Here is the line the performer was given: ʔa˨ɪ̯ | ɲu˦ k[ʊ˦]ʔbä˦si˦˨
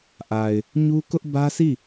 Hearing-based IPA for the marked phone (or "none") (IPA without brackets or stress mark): ʊ˦